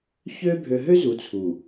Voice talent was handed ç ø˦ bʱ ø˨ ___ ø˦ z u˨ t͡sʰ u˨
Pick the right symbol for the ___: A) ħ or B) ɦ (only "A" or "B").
B